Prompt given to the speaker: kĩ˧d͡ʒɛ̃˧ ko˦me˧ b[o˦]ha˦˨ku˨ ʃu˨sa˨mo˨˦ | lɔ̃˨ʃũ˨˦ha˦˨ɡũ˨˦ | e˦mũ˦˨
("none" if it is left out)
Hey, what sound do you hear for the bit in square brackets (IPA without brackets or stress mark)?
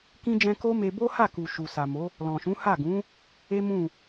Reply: o˦